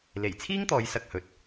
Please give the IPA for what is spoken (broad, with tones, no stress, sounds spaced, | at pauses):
l e˨˩ j t͡sʰ iː˥ ŋ t̪ ɔː˨˧ j s ɐ˧ k̚ h ɵ˨ t̚